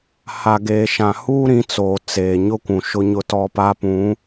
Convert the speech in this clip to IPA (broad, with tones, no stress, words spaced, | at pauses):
ha˨ɡeː˨ʃã˨huː˦ ɾĩ˨˦t͡soː˨ t͡seː˨ ɲʊ˦kʷũ˨ʃʊ˦ ɲʊ˦ tɔ˦pa˦pũ˨˦